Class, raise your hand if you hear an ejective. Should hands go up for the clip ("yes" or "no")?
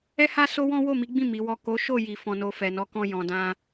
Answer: no